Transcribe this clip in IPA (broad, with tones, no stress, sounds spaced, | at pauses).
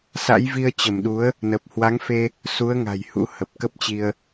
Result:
s a̰˧˥ j v i˧ ə̯ t͡ɕ ə˧˩ m ɗ u˨˦ ə̯ | n ə˨˩ p̚ h w a˨˦ ŋ f e˧ | s u˨˦ ə̯ ŋ a̤˨˩ j h ṵ˧˥ h ə˨˩ p̚ k ə˦˥ p̚ t͡ɕ i˧ ə̯